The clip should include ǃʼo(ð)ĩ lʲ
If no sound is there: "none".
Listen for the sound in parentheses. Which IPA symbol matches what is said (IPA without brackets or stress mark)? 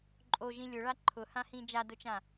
ʒ